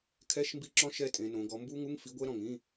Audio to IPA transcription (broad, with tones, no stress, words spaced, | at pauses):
kʰɛ˧˥˧ʃmbi˦˨ǁɔ̃˦˥ ʃɛ˦˥tʼẽ˩˧nõ˩˧ ɡɔ˩˧mbu˦˥ŋu˧˥˧ŋ fi˨˥ɡʷɛ˦˥ ɾɔ̃˨˩ŋĩ˧˥˧